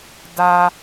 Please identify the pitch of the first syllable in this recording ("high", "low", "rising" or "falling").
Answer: high